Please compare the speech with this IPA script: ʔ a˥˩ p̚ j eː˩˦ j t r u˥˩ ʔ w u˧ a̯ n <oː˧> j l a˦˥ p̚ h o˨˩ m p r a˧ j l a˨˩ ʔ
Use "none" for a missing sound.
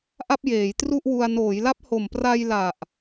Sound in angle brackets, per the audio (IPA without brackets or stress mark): oː˩˦